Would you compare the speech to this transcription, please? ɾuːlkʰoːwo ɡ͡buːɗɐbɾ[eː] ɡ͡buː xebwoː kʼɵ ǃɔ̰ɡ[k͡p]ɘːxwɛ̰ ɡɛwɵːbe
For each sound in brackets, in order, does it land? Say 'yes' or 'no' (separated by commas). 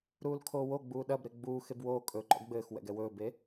no, no